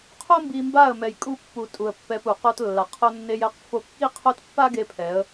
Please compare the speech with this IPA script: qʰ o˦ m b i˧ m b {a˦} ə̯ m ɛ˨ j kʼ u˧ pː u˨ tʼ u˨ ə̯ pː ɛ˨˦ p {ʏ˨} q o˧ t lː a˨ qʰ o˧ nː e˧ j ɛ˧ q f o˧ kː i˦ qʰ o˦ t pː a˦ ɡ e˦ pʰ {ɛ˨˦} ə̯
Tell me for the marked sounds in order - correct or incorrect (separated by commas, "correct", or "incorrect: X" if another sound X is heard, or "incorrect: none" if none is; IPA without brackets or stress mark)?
incorrect: a˦˨, incorrect: u˨, correct